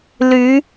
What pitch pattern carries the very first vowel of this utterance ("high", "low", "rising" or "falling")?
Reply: rising